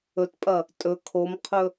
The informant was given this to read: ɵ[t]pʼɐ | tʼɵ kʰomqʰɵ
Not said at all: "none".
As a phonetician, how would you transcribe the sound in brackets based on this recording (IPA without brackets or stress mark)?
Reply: t